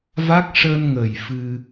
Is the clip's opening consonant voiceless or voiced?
voiced